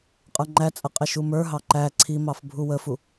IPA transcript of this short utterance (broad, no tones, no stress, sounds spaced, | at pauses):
qʼ ə˞ ŋ͡ǃ æ t͡sʼ ə qʼ ɪ ʃ u m ə˞ ɦ ɑ ǃ æ ǀʰ i m ɑ f bʱ u w ə f u